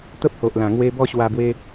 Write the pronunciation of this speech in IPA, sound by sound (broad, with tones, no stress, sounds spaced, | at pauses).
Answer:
t̪ ə˦ p̚ h o˨ ʔ l ã˨˩ ŋ w e˧ b ɔ˦ ɕ w a˧ b w e˧